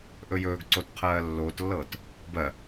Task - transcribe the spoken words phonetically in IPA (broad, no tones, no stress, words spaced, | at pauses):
ʔɵjɵːɡǀot qʰɜːlːoːtlːɤːt | bɜ